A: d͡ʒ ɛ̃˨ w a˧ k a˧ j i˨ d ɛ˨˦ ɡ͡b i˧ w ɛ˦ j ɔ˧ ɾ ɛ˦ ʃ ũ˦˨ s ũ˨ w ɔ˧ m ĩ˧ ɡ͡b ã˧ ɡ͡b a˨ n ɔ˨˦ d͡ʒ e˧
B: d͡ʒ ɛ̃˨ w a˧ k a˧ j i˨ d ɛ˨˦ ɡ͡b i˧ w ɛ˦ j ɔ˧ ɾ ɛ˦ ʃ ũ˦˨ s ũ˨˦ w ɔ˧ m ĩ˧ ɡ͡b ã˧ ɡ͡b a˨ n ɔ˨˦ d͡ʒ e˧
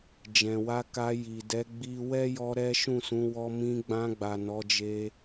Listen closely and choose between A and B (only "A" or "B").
B